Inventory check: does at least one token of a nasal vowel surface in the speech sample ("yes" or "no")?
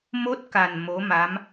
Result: no